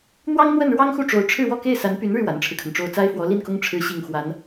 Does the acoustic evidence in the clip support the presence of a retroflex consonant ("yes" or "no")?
yes